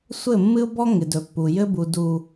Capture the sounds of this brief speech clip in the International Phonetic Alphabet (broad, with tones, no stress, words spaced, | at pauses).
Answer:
sʷɘ˦˨ mːɨ˦ʊ̯bɔ˦ŋɪ˨dɵ˨ pːu˨jɘ˦bu˨ du˨